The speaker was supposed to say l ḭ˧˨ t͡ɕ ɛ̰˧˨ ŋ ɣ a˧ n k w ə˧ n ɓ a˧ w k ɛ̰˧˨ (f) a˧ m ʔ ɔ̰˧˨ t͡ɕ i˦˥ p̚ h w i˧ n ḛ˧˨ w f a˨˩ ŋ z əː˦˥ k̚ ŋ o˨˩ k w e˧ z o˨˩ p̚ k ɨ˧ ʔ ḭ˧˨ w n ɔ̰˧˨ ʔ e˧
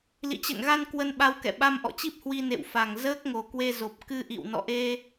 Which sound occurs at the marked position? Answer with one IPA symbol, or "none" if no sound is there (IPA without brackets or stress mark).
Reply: ɓ